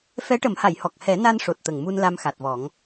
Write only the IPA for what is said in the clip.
f ɛ˧˥ ʈ ə˨˩˦ m h a˨˩˨ j h ɔ˨˩ k̚ h ɛ˨˩˦ n a˧ n ʂ o˨˩ t̚ t̪ ə˨˩ ŋ m u˧ n l a˧ m x a˨˩ t̚ v ɔ˨˩˦ ŋ

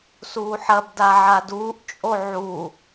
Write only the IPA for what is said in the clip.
s uː ħ ɐ b d a ʕ a d uː ʔ t͡ʃʼ o ʕ u

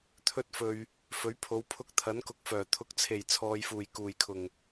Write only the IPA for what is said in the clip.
t̪ʰ ɵ˥ t̚ f ɵ˧ ɥ | f ɵ˨˥ ɥ pʰ o˨˧ w pʰ ʊ˧ k̚ t̪ʰ ɐ˨˥ n k ʊ˧ k̚ f œː˨˩ t̪ʰ ʊ˨˥ k̚ t͡sʰ e˨˩ j t͡sʰ ɔː˨ j f uː˨˩ j k uː˨˩ j kʰ ʊ˨˩ ŋ

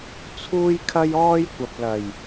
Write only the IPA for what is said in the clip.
t͡sʰ uː˥ j kʰ ɐ˥ j ɔː˥ j kʷ ɐ˨ p̚ l ɐ˨˩ j

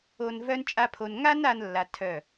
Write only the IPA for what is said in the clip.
o˧ n v œ˦ n t͡ʃʼ a˦ pʰ o˧ n ŋ a˦ n a˦ n lː a˧ tʰ œ˦˨

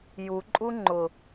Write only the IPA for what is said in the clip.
j u ǃʼ u ŋ͡ǃ ʊ

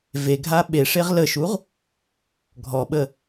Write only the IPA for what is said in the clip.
v e ɡʱ a ɓ e ʂ e ʁ l ə ʃ u ʁ | ɡʱ ɔ ɓ ə

